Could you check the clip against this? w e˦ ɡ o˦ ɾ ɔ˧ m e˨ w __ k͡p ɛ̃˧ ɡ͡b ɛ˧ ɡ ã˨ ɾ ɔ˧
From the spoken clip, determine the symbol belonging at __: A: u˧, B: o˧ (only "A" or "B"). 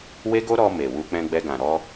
A